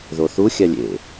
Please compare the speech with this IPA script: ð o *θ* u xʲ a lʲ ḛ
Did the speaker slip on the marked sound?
no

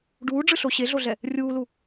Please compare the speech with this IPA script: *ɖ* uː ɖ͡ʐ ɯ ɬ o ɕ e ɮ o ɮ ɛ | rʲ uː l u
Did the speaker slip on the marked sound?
no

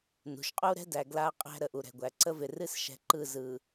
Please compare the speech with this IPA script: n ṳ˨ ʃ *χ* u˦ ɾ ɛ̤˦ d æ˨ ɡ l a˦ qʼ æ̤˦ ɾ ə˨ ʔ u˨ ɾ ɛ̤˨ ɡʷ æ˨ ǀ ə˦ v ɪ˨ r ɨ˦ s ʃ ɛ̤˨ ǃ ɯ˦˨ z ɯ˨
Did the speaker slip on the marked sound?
yes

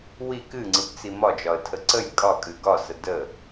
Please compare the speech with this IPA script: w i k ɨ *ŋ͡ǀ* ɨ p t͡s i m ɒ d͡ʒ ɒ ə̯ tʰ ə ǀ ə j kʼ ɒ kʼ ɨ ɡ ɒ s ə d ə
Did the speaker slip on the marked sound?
no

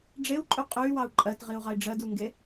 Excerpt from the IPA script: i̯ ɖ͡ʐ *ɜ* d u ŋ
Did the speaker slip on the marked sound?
no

